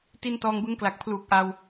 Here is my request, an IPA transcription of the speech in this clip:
t i˧ n t ɔː˧ ŋ b ɯ˦˥ ŋ k l a˨˩ k̚ pʰ l uː˨˩ k̚ ʔ a˧ w

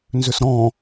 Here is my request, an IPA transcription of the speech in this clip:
n z ʏ s ɾ ɔ̃

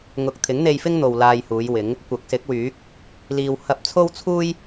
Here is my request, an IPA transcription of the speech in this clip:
ŋ ʊ˧ k̚ t̪ʰ ɪ˨˥ ŋ n̪ e˧ j f ɪ˥ ŋ n̪ o˧ w l aː˧ j h uː˨˧ j w ɪ˨˧ ŋ | kʷ ɐ˨˥ k̚ s ɪ˨˥ k̚ w yː˨˥ k̚ | l iː˧ w h ɐ˧ p̚ t͡sʰ o˥ w t͡sʰ uː˥ j

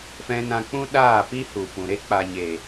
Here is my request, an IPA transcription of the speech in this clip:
f ɛ̃˧ n ã˧ k͡p ũ˦ ɗ aː˦˨ p i˦ h u˨ f ũ˨ ɾ e˦ k͡p a˨ ɲ e˨

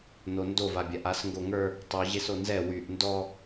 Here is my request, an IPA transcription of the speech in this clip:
n o n d o v a bʲ a ʔ a s ŋ ɡ o ŋ ə˞ | tˤ y ʑ e s o n z ɛ w y ʔ n d ɔ

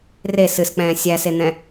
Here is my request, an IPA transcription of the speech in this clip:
r e s ɨ s k͡p ɛ̃ː sʲ æ s e n̪ ɛ̃

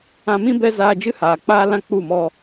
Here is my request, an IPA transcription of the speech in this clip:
ã˧ m ĩ˦ b ɛ˦ z aː˧ d͡ʒ ɨ˦ h aː˨ k͡p aː˦ l ã˦ k͡p u˦˨ m ɔ˧

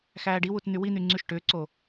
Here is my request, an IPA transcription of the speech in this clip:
x æː ɖ i w u t n̪ y w i n̪ y ŋ͡ǀ y ʃ ʈ ʏː ǀ o

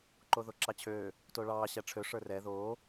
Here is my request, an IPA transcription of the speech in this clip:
ǃ o ð o ǁ ɑ t͡ɕʰ øː | t o ɭ ɑː ɕ æ ʈ͡ʂʰ ø ʂ ə˞ r ɛ ð oː

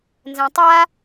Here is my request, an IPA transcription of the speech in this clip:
n z ɛ̃ tˤ a

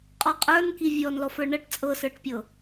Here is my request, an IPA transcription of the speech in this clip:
qʼ ɔ qʼ ə˞ n k i vʲ ɔ n l ɔ f ə˞ ɳ ɤ ʈ t͡sʼ ɤ s ə˞ ʈ pʲ ɤ

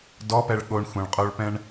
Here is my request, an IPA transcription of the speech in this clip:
d ɔ p ɛ ɭ ɠ o ɳ xʷ ɛ̃ ɭ qʼ o ɭ p ɛ̃ ɳ

